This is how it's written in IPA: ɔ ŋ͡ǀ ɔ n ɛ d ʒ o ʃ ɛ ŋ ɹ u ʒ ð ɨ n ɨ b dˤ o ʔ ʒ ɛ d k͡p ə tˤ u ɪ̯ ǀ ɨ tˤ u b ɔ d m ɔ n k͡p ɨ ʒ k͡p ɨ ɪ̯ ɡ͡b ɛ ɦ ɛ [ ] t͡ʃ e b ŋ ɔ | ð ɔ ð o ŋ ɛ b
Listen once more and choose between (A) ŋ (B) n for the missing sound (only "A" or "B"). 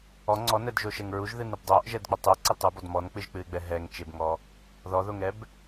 A